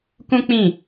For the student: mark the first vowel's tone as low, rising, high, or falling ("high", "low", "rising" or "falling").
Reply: high